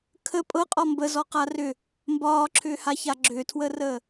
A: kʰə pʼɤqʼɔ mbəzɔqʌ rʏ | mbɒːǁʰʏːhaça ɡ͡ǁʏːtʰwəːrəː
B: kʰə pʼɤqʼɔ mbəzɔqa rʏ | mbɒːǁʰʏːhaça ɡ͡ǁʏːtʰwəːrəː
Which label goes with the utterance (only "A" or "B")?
B